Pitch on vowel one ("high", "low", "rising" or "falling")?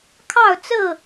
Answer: falling